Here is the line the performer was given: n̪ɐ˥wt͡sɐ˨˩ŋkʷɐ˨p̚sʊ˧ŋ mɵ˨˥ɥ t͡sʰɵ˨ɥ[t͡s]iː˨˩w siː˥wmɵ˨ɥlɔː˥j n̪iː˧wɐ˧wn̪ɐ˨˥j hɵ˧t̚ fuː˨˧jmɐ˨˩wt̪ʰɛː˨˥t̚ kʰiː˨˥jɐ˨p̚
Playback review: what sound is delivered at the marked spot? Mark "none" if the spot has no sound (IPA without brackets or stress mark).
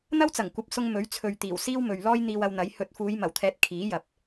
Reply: t̪